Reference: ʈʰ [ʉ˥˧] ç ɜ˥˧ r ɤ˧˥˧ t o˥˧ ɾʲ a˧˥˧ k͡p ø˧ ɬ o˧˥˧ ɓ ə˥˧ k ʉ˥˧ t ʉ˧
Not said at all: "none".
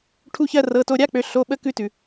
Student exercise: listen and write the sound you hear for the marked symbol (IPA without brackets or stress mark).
u˥˧